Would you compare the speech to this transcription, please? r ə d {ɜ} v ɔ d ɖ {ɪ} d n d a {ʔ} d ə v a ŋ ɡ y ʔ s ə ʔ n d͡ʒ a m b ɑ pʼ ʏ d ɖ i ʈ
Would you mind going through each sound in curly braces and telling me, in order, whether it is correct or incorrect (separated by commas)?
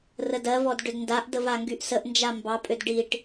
correct, incorrect, correct